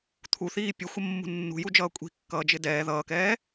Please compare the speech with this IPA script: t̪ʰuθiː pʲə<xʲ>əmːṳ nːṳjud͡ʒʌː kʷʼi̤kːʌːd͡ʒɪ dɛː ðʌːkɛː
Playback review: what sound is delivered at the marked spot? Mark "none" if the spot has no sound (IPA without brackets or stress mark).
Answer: xʷ